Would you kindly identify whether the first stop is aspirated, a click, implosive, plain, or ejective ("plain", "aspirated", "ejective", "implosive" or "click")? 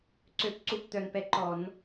click